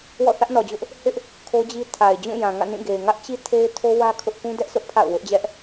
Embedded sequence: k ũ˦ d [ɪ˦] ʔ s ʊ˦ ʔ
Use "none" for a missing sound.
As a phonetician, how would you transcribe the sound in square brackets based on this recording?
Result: ɛ˦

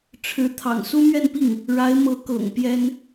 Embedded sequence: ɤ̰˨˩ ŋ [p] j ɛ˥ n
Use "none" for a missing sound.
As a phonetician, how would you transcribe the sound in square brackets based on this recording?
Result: p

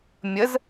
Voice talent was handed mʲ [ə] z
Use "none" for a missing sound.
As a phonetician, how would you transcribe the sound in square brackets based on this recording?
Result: ə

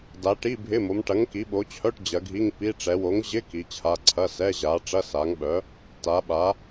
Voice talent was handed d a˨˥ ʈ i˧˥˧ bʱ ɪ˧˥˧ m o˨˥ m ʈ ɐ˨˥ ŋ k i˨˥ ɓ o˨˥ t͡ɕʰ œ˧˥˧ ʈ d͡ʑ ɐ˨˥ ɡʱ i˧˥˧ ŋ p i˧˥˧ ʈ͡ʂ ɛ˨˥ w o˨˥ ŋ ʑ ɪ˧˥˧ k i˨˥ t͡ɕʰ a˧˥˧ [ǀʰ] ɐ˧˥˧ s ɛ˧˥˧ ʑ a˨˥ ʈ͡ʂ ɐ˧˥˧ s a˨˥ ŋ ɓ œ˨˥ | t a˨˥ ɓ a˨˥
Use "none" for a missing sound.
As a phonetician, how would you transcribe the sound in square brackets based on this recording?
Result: ǀʰ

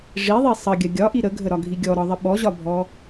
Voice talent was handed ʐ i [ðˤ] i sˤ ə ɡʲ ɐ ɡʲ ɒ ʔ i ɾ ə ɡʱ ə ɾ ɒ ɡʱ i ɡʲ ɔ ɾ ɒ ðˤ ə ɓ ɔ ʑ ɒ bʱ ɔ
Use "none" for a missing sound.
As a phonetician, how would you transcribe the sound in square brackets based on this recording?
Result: ðˤ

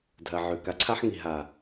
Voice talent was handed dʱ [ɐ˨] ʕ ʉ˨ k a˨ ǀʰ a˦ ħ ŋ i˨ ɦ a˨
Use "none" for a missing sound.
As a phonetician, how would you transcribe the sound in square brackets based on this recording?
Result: ɐ˨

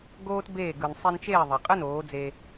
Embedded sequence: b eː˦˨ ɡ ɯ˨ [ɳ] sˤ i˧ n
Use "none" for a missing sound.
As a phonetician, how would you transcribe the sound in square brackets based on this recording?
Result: n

